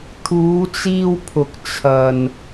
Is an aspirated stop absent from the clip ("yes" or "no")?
no